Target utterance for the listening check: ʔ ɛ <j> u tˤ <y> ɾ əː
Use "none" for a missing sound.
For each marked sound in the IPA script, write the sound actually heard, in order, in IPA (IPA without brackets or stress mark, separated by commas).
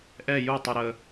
j, u